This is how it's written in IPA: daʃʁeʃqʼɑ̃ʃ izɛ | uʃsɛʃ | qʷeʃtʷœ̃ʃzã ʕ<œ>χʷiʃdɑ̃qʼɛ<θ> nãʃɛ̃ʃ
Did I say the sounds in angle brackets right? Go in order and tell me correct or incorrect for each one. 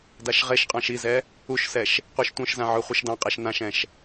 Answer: correct, incorrect: ʃ

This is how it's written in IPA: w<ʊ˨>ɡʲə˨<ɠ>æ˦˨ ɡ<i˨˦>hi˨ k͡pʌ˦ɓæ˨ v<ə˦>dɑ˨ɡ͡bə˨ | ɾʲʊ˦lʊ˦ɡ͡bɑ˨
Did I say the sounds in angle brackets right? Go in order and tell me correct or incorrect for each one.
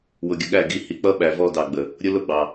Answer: correct, correct, correct, incorrect: ɔ˦

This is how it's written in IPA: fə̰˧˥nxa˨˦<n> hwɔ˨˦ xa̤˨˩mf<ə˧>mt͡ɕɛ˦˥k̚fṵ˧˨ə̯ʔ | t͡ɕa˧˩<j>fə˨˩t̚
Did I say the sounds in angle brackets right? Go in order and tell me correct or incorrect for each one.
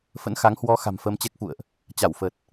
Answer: incorrect: ŋ, correct, incorrect: w

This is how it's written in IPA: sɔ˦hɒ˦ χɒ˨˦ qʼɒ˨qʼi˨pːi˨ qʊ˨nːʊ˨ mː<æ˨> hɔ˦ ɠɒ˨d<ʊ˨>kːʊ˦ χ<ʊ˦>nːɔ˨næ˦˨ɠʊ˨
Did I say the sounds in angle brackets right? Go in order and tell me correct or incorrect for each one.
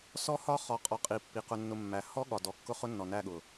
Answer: correct, incorrect: ɔ˨, correct

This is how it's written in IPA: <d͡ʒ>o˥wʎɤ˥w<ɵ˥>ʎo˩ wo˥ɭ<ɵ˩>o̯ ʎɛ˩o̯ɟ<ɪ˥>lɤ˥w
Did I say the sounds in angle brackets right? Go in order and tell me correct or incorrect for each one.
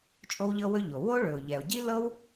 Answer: incorrect: t͡ʃʼ, correct, correct, incorrect: i˥

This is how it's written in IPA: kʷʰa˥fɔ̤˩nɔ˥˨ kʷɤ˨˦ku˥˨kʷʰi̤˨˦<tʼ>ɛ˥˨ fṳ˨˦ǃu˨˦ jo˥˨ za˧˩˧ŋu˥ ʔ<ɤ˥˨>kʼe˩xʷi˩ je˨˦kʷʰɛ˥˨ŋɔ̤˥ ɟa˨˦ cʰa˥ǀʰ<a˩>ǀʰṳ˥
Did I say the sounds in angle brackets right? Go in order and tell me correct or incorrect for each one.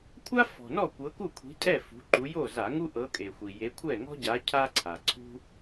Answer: correct, incorrect: ɤ˨˦, correct

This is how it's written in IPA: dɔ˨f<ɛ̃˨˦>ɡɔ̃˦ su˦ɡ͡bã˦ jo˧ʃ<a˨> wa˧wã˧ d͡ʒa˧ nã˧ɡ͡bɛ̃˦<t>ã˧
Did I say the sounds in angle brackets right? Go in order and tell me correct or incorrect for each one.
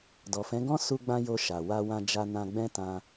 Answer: correct, correct, correct

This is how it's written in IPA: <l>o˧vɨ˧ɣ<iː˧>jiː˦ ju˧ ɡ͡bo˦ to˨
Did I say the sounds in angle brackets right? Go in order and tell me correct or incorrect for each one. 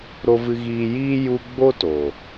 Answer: incorrect: ɾ, correct

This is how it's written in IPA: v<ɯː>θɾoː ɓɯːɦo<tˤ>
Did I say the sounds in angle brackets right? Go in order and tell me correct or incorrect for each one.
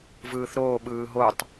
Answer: correct, correct

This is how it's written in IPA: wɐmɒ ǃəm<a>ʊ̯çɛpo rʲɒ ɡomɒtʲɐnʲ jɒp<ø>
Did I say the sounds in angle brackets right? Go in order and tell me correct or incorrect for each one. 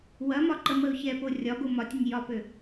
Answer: incorrect: ə, correct

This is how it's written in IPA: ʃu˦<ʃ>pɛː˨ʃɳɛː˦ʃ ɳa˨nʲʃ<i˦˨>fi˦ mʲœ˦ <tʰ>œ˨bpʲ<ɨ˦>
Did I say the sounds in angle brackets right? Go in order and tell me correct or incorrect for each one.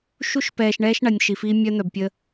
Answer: correct, incorrect: i˨, incorrect: n̪, incorrect: ə˦

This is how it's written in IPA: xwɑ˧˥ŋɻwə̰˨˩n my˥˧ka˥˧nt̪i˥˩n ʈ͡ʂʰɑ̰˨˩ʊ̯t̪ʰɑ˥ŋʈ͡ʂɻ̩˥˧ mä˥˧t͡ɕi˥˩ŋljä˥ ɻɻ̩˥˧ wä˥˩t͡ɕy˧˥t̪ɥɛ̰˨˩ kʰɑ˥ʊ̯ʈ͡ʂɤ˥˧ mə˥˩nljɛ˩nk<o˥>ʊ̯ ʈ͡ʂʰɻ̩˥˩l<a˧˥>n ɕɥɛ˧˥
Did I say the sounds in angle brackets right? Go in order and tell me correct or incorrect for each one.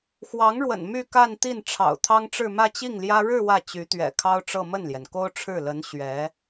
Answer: correct, incorrect: ə˧˥

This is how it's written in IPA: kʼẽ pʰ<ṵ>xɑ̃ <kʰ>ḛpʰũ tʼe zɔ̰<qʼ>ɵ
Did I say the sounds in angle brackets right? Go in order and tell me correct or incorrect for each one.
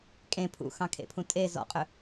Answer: correct, correct, correct

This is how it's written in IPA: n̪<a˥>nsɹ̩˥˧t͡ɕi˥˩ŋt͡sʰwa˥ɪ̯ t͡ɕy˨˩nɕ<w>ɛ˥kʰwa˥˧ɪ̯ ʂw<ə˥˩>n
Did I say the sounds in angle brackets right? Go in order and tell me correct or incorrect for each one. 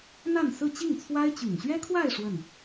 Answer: incorrect: a˥˧, incorrect: ɥ, correct

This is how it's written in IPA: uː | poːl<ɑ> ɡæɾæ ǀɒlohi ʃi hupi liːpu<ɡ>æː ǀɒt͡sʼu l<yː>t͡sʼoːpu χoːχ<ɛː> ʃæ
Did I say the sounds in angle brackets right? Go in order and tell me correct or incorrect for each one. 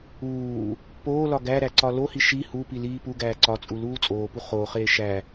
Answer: incorrect: ɒ, correct, incorrect: uː, incorrect: eː

